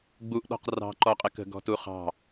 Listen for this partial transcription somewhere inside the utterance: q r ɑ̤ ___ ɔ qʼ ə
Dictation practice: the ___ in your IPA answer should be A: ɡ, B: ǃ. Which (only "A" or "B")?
B